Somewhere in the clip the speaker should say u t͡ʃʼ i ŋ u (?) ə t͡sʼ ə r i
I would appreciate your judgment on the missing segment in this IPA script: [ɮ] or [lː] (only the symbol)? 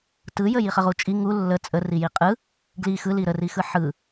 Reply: lː